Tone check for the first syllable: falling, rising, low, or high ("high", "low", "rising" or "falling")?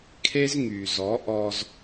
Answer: high